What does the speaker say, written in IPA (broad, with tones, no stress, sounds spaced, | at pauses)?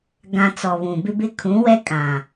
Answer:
ɡ ã˨ t͡s ɔ˨ β ũ˨ b ɪ˦ b ɪ˦ kʰ ũ˨˦ w ɛ˦ kʼ ã˨